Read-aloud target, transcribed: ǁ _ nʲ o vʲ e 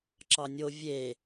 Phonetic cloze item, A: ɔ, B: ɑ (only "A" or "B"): B